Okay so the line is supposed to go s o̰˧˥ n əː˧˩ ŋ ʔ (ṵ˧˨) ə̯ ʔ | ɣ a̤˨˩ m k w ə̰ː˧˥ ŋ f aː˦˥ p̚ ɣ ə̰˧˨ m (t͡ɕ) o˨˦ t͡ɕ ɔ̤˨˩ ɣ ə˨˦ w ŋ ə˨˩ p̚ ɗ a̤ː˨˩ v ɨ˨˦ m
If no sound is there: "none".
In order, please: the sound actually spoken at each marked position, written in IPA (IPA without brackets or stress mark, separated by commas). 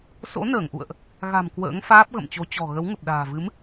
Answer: ṵ˧˨, t͡ɕ